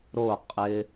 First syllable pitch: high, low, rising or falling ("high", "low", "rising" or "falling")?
falling